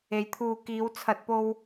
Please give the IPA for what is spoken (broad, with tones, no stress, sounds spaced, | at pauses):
e˨˥ j t̪ʰ uː˨ k iː˨˧ w t͡sʰ ɐ˨ t̚ p o˧ w